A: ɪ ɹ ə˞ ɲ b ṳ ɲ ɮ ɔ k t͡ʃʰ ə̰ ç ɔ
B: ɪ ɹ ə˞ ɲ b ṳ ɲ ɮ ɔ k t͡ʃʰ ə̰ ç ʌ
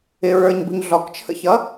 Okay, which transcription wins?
B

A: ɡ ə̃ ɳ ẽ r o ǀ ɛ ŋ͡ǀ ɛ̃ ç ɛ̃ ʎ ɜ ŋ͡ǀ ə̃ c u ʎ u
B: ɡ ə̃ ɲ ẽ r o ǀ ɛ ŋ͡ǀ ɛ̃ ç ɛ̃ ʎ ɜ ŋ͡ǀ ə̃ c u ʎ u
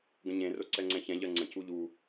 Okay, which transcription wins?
B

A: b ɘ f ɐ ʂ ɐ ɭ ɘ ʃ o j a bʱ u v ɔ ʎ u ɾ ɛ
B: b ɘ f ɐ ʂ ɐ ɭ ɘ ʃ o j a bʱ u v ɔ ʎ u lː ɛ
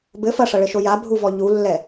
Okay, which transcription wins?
B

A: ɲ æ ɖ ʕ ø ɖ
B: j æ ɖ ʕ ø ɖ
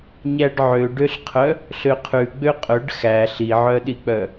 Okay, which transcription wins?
A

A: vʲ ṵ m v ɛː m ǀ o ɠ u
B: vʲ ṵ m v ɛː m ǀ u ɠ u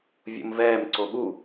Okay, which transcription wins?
A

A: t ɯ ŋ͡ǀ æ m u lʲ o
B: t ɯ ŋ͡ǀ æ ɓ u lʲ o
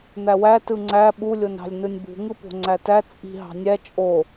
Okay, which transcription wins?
B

